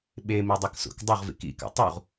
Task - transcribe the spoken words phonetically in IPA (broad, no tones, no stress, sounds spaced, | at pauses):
ɓ e m i dˤ ʌ k s ṵ k dˤ ʌ ʁ v ḭ k ḭ k a̰ tˤ u ʁ